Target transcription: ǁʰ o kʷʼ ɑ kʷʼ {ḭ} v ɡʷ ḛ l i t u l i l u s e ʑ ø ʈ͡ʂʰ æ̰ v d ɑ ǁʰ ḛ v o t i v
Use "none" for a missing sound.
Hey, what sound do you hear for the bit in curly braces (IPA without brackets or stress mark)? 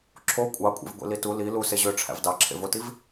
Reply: ḛ